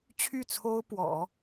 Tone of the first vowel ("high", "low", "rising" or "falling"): falling